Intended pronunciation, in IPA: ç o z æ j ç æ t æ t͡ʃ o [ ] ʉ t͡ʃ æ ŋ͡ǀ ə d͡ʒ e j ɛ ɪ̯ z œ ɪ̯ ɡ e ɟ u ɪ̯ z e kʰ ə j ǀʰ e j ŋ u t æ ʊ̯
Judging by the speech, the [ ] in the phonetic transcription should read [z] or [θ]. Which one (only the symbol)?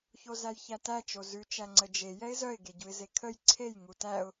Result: z